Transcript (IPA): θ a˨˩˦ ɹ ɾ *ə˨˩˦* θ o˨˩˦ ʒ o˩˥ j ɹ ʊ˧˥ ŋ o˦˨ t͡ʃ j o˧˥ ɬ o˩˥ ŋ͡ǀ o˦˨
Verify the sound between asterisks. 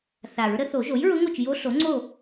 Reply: correct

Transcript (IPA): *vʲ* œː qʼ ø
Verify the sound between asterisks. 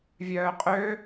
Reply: correct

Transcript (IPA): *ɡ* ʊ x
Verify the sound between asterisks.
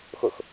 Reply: incorrect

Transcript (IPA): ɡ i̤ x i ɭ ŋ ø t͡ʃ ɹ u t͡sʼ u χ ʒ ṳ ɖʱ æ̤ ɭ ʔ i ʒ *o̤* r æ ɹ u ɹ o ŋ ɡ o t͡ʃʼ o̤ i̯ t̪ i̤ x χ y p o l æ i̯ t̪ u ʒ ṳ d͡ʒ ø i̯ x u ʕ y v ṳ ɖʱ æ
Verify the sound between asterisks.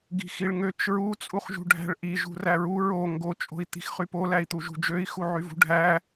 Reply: incorrect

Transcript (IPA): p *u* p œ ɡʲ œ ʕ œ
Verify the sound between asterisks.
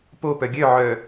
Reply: incorrect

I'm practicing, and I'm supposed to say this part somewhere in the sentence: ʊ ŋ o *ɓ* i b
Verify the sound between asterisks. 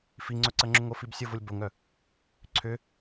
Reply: incorrect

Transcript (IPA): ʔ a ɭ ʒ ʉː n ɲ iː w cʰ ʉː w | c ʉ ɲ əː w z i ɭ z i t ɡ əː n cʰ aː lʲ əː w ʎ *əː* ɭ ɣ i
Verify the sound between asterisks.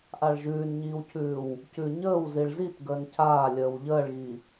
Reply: correct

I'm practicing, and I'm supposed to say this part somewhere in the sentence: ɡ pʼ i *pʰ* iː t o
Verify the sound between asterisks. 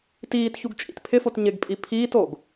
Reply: correct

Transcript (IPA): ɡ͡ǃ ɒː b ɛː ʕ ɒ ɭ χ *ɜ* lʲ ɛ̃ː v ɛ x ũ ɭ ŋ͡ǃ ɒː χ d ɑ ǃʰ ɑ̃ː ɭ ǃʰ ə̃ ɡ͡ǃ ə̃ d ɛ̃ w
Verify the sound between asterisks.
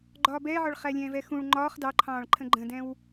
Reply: incorrect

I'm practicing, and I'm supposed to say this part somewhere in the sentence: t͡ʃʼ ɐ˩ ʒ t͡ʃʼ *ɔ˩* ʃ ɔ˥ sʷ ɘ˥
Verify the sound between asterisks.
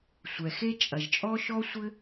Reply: incorrect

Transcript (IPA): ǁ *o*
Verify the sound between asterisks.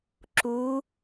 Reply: incorrect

